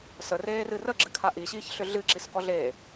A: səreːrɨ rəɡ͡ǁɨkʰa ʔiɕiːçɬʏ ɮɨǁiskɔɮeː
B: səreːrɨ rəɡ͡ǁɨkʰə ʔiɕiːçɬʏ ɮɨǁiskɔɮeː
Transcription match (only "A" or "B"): A